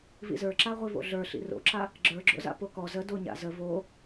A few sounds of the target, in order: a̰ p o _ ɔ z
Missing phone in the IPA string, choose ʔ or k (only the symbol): k